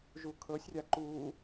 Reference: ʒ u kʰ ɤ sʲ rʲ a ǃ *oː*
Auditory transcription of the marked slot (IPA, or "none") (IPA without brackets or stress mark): uː